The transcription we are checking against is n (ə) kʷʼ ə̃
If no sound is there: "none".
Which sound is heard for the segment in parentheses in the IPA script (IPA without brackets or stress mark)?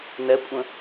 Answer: ɛ